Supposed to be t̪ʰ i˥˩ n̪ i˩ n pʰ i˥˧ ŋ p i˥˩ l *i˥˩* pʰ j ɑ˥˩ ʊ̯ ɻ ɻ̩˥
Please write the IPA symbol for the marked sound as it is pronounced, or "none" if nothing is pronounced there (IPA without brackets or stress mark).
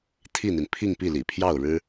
ḭ˨˩